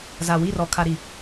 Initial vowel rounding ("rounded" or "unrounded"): unrounded